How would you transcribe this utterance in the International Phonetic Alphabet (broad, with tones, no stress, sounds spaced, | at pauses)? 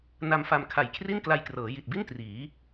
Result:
n a˧ m f a˧ m kʰ a˨˩ j kʰ r i˥˩ n k l a˧ j k r ɤː˩˦ j i˨˩ t̚ b i˥˩ n t r iː˩˦